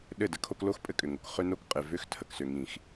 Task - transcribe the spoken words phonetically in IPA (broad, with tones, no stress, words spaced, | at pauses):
ɗɘ˦˨də˦kʰo˦k lo˦xpʼɘ˦kʼʏ˨ŋo˨k χø˦no˦kqʼɪ˨ vʏ˦x tʰə˨ksʏ˨ŋĩ˨x